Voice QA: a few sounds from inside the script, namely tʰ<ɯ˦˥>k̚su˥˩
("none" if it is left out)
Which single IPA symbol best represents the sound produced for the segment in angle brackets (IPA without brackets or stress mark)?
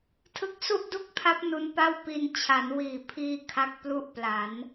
ɯ˦˥